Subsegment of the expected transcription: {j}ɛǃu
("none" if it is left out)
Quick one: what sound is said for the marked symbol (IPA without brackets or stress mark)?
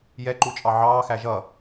j